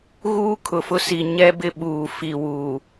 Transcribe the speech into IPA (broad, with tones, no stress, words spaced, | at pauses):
ɣuː˦kʰʊ˨fʊ˦si˨ ɲɛ˦bɪ˦ ɓuː˨ fi˨wuː˨